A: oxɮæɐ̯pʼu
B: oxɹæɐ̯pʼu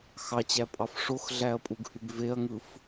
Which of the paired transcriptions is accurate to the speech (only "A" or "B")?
A